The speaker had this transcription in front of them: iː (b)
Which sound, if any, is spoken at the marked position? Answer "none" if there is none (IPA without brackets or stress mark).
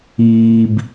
b